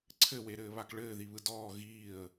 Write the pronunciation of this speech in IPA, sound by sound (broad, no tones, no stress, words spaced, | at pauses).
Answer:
ǀʰɘweɾɘːβak ɭɘːðiβɯ dɔː ɣiːə̯